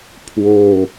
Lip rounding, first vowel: rounded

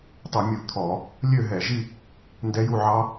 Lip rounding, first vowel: rounded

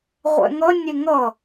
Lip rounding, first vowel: unrounded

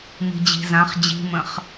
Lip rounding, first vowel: unrounded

